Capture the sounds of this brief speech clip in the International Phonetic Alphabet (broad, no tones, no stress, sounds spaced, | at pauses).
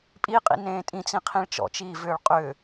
pʼ i qʼ ḭ n ẽː tʼ ĩ t͡s ĩ qʰ ĩ ɭ t͡ʃ ɔ̰ t͡ʃ iː v ʏː ɭ qʼ ʏ